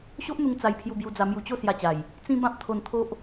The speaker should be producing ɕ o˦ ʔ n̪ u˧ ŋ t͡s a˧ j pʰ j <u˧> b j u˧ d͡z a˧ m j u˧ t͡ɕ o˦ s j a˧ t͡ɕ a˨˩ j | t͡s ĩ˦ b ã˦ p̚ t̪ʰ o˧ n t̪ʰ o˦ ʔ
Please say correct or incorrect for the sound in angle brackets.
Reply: correct